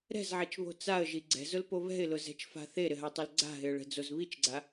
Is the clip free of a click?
no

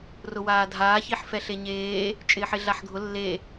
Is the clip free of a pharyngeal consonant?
no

